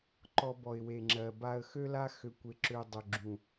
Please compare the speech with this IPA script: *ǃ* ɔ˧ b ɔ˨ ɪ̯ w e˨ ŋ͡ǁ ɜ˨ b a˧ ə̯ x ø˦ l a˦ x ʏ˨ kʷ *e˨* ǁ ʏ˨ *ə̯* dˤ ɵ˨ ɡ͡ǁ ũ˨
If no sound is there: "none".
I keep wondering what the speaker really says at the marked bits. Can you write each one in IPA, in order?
ǃ, e˨, ʊ̯

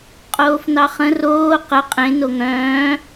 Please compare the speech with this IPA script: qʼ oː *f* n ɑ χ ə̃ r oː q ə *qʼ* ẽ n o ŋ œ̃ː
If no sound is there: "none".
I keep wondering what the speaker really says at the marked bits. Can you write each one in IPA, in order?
f, qʼ

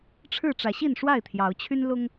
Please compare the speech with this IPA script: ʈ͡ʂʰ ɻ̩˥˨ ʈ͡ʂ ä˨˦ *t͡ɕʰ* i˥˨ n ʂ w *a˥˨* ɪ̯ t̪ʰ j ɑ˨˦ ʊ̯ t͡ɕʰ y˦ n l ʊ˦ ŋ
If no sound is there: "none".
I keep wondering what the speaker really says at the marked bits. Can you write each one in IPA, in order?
ɕ, a˥˨

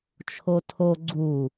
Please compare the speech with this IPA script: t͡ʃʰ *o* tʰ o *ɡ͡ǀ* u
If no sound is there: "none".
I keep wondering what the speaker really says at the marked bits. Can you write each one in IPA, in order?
o, ɡ͡ǀ

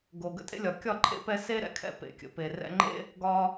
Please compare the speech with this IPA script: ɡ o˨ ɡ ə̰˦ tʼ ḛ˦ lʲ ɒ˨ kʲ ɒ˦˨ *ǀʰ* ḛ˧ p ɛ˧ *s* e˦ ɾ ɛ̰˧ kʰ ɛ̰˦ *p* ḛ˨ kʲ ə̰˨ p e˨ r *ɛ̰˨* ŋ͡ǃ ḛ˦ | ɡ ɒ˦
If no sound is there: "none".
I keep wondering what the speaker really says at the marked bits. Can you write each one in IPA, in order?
ǃʰ, s, p, ɛ̰˧

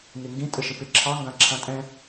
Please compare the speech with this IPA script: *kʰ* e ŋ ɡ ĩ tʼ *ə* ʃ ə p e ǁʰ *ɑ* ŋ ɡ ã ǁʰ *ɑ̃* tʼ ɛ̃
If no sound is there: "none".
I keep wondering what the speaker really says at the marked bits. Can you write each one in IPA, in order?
ŋ, ə, ɑ, ã

